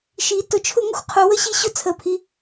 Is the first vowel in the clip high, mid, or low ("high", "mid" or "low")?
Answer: high